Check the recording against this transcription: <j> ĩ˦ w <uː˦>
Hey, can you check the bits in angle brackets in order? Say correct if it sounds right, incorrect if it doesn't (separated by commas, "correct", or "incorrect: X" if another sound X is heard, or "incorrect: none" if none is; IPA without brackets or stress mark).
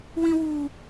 incorrect: w, correct